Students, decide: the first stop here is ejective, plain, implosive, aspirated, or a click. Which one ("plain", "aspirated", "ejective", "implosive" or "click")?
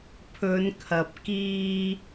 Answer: aspirated